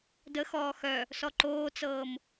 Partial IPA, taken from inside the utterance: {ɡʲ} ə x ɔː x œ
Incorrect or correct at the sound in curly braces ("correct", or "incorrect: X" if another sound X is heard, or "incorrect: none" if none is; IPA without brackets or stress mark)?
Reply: incorrect: d